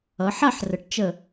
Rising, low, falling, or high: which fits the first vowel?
rising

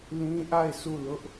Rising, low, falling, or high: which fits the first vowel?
high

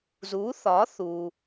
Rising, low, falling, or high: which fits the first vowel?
rising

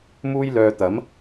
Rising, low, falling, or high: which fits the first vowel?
high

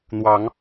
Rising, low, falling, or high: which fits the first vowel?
rising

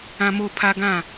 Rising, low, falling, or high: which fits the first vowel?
low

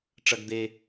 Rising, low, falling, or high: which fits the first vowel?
low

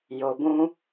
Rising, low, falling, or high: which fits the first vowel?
low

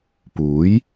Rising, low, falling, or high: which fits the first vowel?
rising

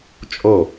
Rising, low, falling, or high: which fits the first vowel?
falling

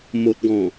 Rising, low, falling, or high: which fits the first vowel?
low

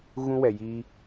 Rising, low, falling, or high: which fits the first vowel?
high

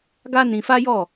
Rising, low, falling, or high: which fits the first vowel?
high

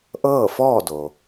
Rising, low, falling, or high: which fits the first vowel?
falling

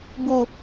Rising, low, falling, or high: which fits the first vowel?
low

